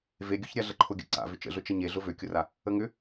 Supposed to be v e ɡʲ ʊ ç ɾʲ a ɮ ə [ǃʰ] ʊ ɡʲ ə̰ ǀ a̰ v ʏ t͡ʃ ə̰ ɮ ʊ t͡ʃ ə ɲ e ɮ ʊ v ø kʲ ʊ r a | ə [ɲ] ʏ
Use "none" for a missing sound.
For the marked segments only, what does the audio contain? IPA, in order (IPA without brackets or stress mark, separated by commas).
ǃʰ, ŋ